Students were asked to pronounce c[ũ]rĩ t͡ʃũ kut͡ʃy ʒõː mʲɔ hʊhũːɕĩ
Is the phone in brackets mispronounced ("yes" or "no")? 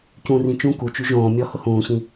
no